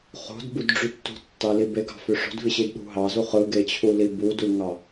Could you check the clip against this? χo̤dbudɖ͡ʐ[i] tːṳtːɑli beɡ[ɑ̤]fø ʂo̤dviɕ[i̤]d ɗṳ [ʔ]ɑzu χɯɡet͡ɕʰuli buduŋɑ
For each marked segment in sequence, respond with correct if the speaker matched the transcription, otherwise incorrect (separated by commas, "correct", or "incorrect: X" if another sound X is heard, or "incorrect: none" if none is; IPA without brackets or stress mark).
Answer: incorrect: y, correct, incorrect: i, incorrect: ɦ